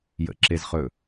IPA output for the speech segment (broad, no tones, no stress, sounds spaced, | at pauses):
j ə̰ ǁ e z χ ɵ